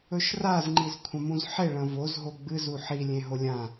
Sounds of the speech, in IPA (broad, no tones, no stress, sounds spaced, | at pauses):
ɵ ʃ r a z ŋ͡ǃ i z kʷʰ ɐ̃ m ũ z ħ e ɭ ɐ̃ v o z ɦ o ɡ͡b ɨ z u ħ i lʲ ẽ ɦ o lʲ ã